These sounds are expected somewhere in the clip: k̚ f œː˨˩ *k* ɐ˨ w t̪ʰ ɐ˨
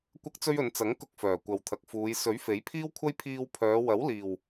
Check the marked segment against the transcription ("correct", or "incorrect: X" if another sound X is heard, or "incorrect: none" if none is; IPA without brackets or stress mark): incorrect: kʷ